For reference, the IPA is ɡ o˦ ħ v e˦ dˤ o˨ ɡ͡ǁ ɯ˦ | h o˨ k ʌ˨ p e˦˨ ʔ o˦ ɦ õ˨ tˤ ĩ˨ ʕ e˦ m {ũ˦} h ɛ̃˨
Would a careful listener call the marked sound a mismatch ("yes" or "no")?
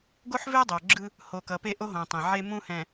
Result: no